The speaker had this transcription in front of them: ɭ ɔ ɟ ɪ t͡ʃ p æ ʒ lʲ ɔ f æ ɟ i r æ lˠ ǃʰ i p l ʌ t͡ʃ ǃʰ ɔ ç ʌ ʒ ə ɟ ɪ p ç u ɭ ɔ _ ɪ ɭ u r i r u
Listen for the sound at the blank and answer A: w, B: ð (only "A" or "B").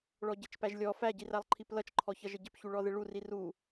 B